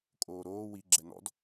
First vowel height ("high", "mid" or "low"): mid